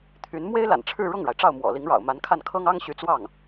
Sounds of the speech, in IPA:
t̪ʰ y˧˥ n m w e˥ ɪ̯ l a̰˨˩ n ʈ͡ʂʰ ɻ̩˥˧ ɻ ʊ˥˩ ŋ ɻ a˩ ɪ̯ ʈ͡ʂ ɑ˥˩ ʊ̯ m w ɔ̰˨˩ l i˧˥ ŋ ɻ ɑ̰˨˩ ʊ̯ m a˧˥ n kʰ a˥˩ n kʰ ɤ˥ ŋ ɑ˥ ŋ ɕ y˧˥ t͡s w ɑ˥˩ ŋ

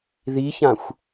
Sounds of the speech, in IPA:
ð i ç ã xʷ

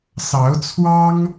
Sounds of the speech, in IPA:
s ɑ˧˥ ʊ̯ t͡sʰ w ɑ˥ ŋ

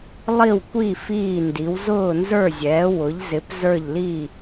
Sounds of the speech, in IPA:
lˠ i˥˨ w kʷ i˥˨ f iː˥˨ n d i˨˥ w z ʊː˥˨ n z ə˞˥˨ zʲ ɛː˨˥ w ʊ˨˥ ʎ z ɪ˨˥ p z ə˞˥˨ ʎ l iː˥˨

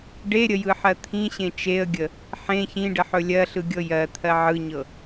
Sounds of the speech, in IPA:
ɖ e ɾʲ ə j ɯ ħ ɜ t̪ʰ ĩ ɕ ẽ t͡ʃ e ə̯ ɡʲ ə | ħ ẽ ç ĩ ɖ ə ħ ɵ lʲ ɜ ɬ ɯ ɡʲ ɤ j ɜ t̪ʰ ɜ ʕ ɯ ɲ ɤ

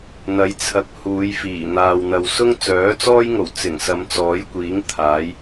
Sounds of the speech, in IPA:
n̪ ɐ˨˥ j t͡sʰ ɐ˨ k̚ h uː˨˧ j f iː˨˩ n̪ aː˨ w n̪ ɐ˨ w s ʊ˥ ŋ t͡s œː˨˥ t͡s ɔː˥ j ŋ o˨˩ w t͡s ɪ˨˩ ŋ s ɐ˨˧ m t͡s ɔː˨˥ j kʷ iː˨˥ ŋ t̪ʰ aː˨˥ j

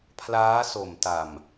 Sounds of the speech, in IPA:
pʰ l aː˦˥ s o˨˩ m t a˨˩ m

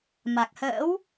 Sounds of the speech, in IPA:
m a˨˩ k̚ h ə̰ː˧˥ w

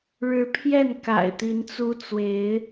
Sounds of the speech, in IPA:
ɻ ɻ̩˨˦ pʰ j ɛ˥˨ n k a̰˨˩ ɪ̯ t̪ i˨˦ n t͡s u˦ t͡s w e˨˦ ɪ̯

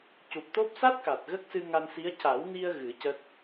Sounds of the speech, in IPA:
c u˨˩ p̚ t̪ o˦˥ p̚ s a˦˥ t̚ k a˨˩ t̚ ɣ ə˦˥ k̚ s ɨ˧ ŋ a˧ n s i˧˥ ə̯ c a˨˩˦ w n i˧ ə̯ ɣ ɨ˨˩˦ c ə˦˥ k̚

